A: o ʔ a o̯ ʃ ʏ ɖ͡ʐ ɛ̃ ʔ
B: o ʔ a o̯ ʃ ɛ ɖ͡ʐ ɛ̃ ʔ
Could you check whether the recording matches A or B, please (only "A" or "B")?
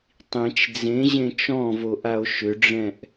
A